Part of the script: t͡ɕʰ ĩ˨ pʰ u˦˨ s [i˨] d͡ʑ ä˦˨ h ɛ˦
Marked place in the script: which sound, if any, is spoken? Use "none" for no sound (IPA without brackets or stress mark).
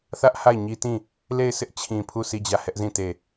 i˦˨